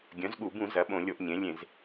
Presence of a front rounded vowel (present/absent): present